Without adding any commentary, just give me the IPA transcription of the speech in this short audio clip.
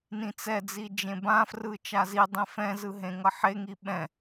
n ĩ t͡s ɛ d͡z i d͡ʒ ẽ b ã f r ɯ t͡ʃ a z i dˤ ẽ f ɛ̃ z ɯ ɦ ẽ ŋ ʌ ħ e ŋ i ɓ ɛ̃

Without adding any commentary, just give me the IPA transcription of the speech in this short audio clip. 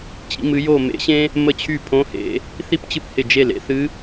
t͡ɕ ḭ˥ m ɨ˧˥ j o˥˧ m ḛ˧˥ ɕ ẽ˥ | m ə˥˩ t͡ɕʰ y˥˩ pʰ õ˧˥ h ḛ˧˩˧ | θ i˥ p t͡ɕ ɨ˥˩ p h ɪ˥˩ d͡ʒ e˥˩ l ḛ˥ θ ɨ˧˥

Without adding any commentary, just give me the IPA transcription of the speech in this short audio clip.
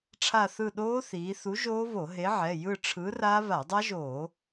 ʈ͡ʂʰ a˦˨ θ ɯ˦˨ ɗ oː˦˥ θ iː˩˧ θ u˨˥ ʒ oː˦˥ β o˧˩˧ ɦ e˨˥ ʕ ɛ˩˧˩ j ɯ˦˨ ʈ͡ʂʰ ɯ˨˥ r a˦˥ β a˧˩˧ dˤ a˦˥ ʒ oː˧˩˧

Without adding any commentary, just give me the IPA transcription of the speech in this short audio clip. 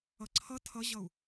ʌ ǀʰ ʌ tʰ ʌ ʑ ʌ u̯

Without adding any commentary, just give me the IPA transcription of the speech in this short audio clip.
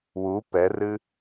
w u p ɛ r ɨ

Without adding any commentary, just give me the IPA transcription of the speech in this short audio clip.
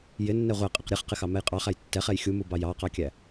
j ɪ nː ɛ ʁʷ æ qʼ ɪ q ɾʲ ɛ χ q ɪ x ɑ m ɛ j qʼ ɑ χ æ j tː ɛ χ ɛ j xʲ u m u b ɑ j ɑ q ɑ kʲ æ

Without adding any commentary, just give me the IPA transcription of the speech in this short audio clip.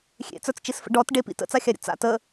xʲ ḛ t͡s ə˞ t͡s t͡ʃ i s f ə̰ ɖ ɔ t ɖ e p ḭ t ə̰ t͡s a xʲ a ɾʲ ə̰ t͡s a̰ t ə

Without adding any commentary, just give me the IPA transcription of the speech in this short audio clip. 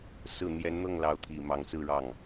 s ɹ̩˨˩ n̪ j ɛ˧˥ n n̪ ɤ˥˩ ŋ l ɑ˧˥ ʊ̯ t̪ʰ i˨˩ m ɑ˧˥ ŋ t͡s ɹ̩˥˧ ɻ ɑ˥˩ ŋ

